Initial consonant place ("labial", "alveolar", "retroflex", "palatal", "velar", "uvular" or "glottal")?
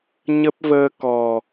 palatal